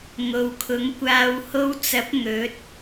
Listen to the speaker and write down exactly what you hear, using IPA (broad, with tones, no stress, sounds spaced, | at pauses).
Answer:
ŋ o˨ w kʰ ʊ˨˥ ŋ kʷ aː˨ w h o˧ w t͡s ɐ˨˥ p̚ ŋ ɵ˨˥ t̚